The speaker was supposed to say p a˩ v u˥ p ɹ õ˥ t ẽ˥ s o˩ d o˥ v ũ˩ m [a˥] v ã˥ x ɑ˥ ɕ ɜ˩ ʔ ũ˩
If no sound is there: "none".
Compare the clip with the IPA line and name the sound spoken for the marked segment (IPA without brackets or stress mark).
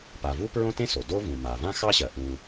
a˩